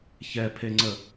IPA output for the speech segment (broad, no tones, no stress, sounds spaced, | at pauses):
ç ɛ pʰ e ŋ͡ǀ ə